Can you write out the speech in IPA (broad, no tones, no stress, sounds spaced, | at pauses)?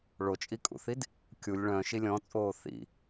ɭ o t͡ʃʼ i kʼ ṵ θ i d | kʲ u lʲ ɭ œ̃ ʃ i lʲ ɔ̃ t͡sʼ oː θ ḭ